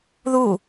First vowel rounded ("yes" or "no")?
yes